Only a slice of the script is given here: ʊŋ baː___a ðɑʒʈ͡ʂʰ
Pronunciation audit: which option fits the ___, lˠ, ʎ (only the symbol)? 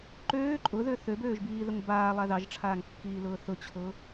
lˠ